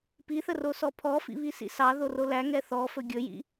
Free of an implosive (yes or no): yes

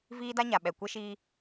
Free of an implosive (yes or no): no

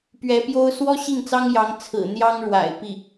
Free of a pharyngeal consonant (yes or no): yes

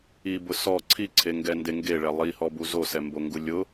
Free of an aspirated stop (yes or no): no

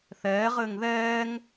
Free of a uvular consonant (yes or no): no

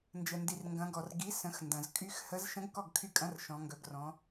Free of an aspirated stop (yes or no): no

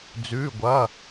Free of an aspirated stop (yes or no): yes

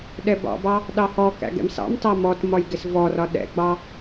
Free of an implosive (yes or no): no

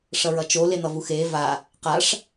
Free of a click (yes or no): yes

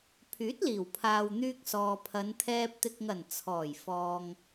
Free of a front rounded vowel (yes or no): no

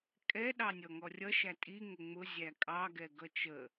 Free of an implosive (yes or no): no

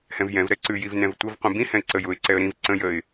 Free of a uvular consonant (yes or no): no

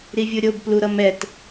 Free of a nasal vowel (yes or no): yes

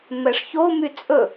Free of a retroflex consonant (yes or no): no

